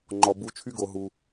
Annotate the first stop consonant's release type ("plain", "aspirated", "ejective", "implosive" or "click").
click